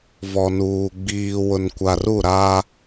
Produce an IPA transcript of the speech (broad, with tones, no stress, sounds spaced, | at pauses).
v ɔ˨ n uː˨ ɡ͡b iː˨ w ʊ˨ n kʷ a˨ r u˦˨ ɾ a˦